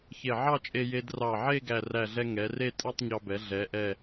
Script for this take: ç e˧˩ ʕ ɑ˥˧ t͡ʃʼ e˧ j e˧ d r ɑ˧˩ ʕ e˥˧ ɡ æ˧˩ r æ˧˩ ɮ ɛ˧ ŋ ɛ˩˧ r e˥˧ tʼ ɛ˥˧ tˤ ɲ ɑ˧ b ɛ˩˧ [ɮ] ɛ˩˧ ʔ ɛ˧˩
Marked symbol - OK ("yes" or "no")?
yes